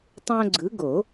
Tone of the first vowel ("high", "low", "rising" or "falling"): high